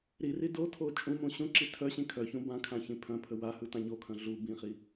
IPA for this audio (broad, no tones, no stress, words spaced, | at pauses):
ɾiri dotʰo t͡ʃʼũmũ ɕũǁi tʰœ ɕĩkʰœçũ bãkʰã çĩpʰœ̃pʰə wahɯ tãɲokʰœ̃ ɮu bĩχi